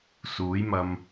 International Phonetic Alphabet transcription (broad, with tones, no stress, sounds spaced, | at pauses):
s uː˨˥ j m ɐ˧ m